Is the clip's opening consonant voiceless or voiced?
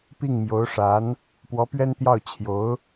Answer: voiceless